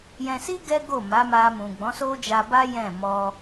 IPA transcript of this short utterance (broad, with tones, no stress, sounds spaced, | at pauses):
j ɛ̃˧ s i˦ ɡ ɛ˦ ɡ o˦˨ m a˨˦ m a˧ m ũ˨ ɡ͡b ɔ̃˨˦ s o˦ d͡ʒ a˧ b a˦ j ɛ̃˦˨ m ɔ˧